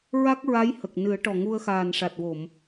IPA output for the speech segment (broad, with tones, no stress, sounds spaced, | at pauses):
ɹ a˦˥ k̚ ɹ a˧˥ j h ə˨˩ k̚ n ɨ˨˩˦ ə̯ ʈ ɔ˨˩ ŋ u˧ ə̯ x aː˨˩ n ʂ a˨˩ t̚ w o˨˩˨ m